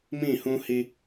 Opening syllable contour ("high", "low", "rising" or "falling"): falling